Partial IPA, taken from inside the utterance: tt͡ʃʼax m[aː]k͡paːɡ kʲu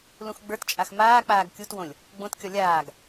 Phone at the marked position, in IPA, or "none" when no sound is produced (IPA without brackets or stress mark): aː